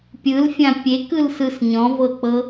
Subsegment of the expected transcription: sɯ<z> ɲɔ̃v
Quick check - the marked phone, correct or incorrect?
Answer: incorrect